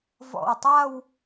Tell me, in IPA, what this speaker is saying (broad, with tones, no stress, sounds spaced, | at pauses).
v ɔ̰˧˩ w tˤ a˥˧ w